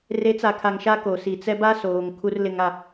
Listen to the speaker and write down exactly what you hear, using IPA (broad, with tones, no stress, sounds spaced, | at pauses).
r e˨˦ t͡s a˨ kʰ a˨ ŋ ʃ a˦ k o˨ s i˨ t͡s ɛ˦ b a˦ s oː˨ ŋ kʰ u˦ r l ɪ˦ ŋ a˦